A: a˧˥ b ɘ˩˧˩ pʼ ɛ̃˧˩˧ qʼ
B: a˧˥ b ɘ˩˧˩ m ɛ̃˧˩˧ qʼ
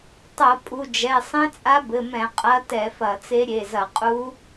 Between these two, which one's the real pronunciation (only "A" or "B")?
B